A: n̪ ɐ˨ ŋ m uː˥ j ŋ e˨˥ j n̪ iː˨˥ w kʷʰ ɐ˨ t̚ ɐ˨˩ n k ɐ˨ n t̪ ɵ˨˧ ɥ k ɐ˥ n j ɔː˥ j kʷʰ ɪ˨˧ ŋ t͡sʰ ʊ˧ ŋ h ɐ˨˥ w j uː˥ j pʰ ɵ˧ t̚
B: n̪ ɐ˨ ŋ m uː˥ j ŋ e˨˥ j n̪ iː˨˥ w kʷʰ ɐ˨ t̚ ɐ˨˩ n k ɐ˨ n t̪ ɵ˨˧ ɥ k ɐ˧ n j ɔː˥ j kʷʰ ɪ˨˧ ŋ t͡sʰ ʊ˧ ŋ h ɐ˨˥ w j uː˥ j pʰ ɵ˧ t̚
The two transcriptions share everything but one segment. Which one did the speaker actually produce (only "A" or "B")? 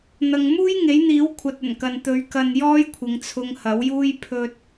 B